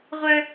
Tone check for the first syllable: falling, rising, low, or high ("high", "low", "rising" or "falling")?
high